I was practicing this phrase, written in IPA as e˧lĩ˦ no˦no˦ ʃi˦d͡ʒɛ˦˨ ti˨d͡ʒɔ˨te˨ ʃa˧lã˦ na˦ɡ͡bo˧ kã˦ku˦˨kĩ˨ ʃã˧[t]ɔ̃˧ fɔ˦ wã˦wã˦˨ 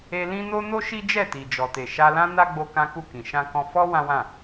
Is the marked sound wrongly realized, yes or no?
yes